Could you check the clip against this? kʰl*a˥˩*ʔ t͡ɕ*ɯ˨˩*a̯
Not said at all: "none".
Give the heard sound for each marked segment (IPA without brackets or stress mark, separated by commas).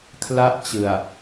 a˥˩, ɯ˨˩